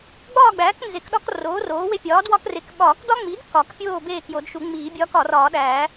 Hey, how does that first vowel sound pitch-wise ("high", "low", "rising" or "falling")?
falling